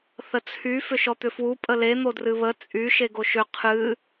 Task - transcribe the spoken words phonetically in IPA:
θ ə t͡sʰ y f ʏ ʃ ɔ t̪ ʏ f w u pʼ ə l e n̪ o d r ɨ β ə t͡sʼ y ʃ e ɡ o ʃ ʏ qʰ ɨ

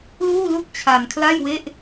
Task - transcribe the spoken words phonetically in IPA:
l uː˥˩ l u˥˩ k̚ t͡ɕʰ a˧ n kʰ l a˥˩ j w e˥˩ ʔ

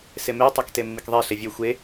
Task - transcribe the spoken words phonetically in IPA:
s e m e tˤ ɑ k t e mː i k ðˤ e ɬ e vʲ ø xʷ e

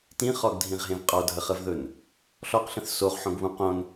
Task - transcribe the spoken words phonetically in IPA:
t ĩ χ ɔ ɡ dʱ ĩ ʁ ɦ ẽ v qʼ ɔ dʱ ə χ ə v ð ɵ n | ɬ ɔ q ɬ ə̃ θ s o ʁ ħ õ ɡ β ũ q õ n

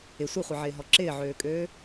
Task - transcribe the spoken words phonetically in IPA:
ɪ sʷ i χʷ i ʕ ɪː ɦ ɔ ǁ ɪː ʕ øː kʼ øː

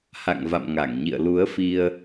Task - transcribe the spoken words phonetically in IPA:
h a̰˧˨ ŋ v a̰˧˨ m ŋ a˧˩ ŋ ɲ ḭ˧˨ ə̯ l u˨˦ ə̯ f i˧ ə̯

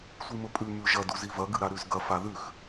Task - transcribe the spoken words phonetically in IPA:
sʷ i m ɵ pʼ ʉ m ʉ ʒ ɐ d u z i v ɐ ɡ ɨ ɾ a ɾ ʉ z ɡ ɐ f a ð ʉ x

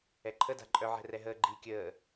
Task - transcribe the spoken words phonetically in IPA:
ɛ ǃʰ ə d a̤ ǃʼ œ ʕ ɛ̤ r ɛ ɦ əː ɡ͡ǃ i kʲ əː

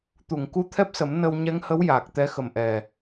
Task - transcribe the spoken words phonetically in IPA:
t̪ u˨˩˨ ŋ k u˧ t̪ʰ ɛ˦˥ p̚ s ə˨˩˦ m n ə˧ w ɲ ɛ˧˥ ŋ h ə˧˥ w j aː˨˩ k̚ t̪ ɛ˧˥ x ə˨˩ m ʔ ɛ˨˩

